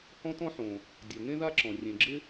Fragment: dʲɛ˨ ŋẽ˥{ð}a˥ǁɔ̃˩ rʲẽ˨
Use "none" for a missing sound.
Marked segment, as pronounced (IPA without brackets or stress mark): ð